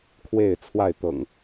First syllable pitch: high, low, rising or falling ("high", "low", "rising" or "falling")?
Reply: falling